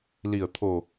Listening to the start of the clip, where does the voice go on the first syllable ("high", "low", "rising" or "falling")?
low